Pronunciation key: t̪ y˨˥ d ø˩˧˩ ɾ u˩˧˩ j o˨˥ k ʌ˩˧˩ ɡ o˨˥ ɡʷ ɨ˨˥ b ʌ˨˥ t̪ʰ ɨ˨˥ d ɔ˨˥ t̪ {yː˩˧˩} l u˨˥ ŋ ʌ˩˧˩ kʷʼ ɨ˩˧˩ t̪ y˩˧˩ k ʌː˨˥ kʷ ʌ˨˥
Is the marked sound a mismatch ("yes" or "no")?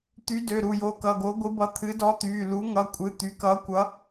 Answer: no